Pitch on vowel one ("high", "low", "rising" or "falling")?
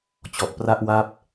low